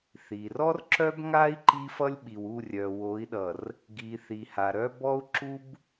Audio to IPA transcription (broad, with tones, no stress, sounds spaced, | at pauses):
θ i˨ r ɔ˦ r ǁ œ˦ b ŋ a˦ i̯ ǃ i˦ f ʌ˦ lʲ ɓ i˨ w u˦˨ rʲ œ˨ w o˨˦ i̯ ɗ ʌ˨ r | ɡ i˨ θ i˨ h a˨ ɾ œ˦ b ɔ˦ u̯ ǁ u˦ b